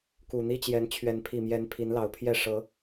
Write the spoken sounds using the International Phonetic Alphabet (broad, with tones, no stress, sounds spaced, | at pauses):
k u˨˩ n̪ i˦ t͡ɕ j ɛ˨˦ n t͡ɕʰ ɥ ɛ˨˦ n pʰ i˨˩ m j ɛ˨˦ n pʰ i˨˦ n l ɑ˨˩ ʊ̯ pʰ j ɛ˥˨ ʂ ɤ˨˦